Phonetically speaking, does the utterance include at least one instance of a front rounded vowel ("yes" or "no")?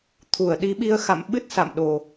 no